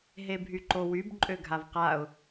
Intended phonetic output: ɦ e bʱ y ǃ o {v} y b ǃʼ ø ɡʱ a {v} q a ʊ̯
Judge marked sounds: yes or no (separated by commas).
no, yes